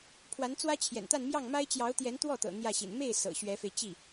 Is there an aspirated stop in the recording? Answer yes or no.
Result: yes